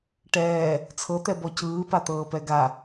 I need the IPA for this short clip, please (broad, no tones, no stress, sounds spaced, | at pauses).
ʈ ɛː | t͡sʰ ɤ t̪ ɛ b ɔ c ɯː p a t̪ ɤː p ɛ ɡ a